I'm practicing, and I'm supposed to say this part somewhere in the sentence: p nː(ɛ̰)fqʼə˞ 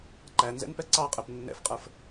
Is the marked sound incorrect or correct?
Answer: correct